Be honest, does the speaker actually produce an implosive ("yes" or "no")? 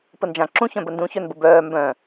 no